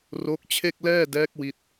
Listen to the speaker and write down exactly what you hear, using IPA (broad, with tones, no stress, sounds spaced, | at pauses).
r o˦˥ k̚ t͡ɕʰ e˥˩ k̚ l ɛː˥˩ d ɛː˦˥ k̚ w i˥˩ t̚